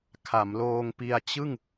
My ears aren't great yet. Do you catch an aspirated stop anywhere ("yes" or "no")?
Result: yes